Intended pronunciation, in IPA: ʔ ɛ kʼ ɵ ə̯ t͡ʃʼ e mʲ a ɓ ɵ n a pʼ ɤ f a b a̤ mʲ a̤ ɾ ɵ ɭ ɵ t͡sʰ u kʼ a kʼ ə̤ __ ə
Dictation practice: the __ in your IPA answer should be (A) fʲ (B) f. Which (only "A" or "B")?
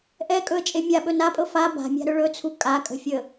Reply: A